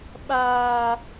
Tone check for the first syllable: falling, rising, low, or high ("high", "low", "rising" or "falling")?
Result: high